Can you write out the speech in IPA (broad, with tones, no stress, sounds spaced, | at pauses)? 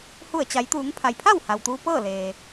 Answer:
h u˧˩ ə̯ t͡ɕ a˩˧ j t̪ uː˩˧ ŋ pʰ a˩ j pʰ a˥˨ w h a˩ w t̪ uː˧ p ɤː˥˨ l eː˩